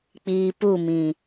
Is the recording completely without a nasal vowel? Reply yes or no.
no